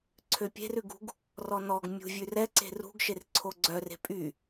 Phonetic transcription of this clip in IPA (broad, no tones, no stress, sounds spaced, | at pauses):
ǀʰ ø pʲ e̤ r ʉ ɡ ṳ ɡ | r ɔ n ɔ ɡ mʲ ṳ vʲ ʉ r ɛ ǀ e̤ r ṳ ɡ ʃ e r ǀʰ o ɡ͡ǀ œ r e̤ pʼ y